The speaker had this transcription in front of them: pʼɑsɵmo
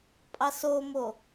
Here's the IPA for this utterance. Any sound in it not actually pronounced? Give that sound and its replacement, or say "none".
ɵ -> o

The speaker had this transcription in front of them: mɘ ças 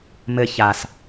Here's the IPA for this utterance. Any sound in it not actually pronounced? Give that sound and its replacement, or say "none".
none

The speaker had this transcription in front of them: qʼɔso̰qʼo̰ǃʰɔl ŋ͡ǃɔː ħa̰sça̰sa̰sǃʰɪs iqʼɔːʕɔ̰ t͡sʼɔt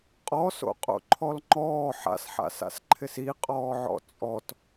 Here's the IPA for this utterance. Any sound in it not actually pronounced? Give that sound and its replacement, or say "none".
ç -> ħ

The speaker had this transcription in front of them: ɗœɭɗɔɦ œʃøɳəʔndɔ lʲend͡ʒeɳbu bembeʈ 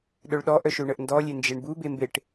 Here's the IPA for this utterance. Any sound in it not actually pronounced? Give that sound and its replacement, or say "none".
ɦ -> ʔ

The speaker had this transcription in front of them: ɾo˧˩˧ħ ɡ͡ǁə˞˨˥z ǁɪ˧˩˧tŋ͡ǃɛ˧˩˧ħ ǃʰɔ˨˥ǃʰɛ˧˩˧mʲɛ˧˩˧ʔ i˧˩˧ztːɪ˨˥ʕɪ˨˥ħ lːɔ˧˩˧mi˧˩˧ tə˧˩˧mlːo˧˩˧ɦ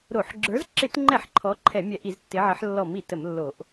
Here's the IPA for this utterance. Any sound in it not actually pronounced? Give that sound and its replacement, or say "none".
ɦ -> ʔ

